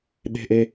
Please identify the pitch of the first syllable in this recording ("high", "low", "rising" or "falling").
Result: high